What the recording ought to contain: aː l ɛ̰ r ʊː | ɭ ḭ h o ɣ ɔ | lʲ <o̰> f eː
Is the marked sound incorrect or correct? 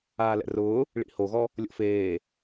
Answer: correct